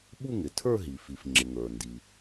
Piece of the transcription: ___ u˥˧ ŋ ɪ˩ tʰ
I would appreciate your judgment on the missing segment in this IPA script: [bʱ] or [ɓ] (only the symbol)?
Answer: ɓ